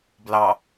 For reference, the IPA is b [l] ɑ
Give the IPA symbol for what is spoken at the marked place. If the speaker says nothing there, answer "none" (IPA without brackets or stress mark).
l